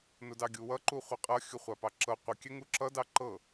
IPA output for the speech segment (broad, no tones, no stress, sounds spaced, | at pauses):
n ʊ d ɑ ɡʲ u w ʌ ǃ u χʷ ʌ qʼ ʌ xʲ ʊ χʷ a p ɑ ǁ ɤ qʷ ə kʲ ɛ ŋ u ǁ ʌ d ɑ ǃ ɤ